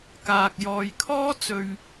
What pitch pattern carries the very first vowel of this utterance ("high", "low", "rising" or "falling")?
low